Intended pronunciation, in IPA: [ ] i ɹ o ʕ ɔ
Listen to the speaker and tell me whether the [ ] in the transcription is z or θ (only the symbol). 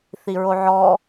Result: θ